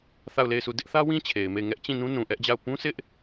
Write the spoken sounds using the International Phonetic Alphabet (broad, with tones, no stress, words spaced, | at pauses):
θa˦˨ʊ̯le˦˨ɪ̯sʰu˦˨ dɪ˦ʔθä˦wĩ˦ t͡ɕʰe˨ɪ̯me˦˨ɪ̯ ŋɛ˦ʔt͡ɕĩ˦˨nũ˦ nũ˨ʔɛ˦ʔd͡ʑa˦˨ʊ̯ pũ˦sɪ˦ʔ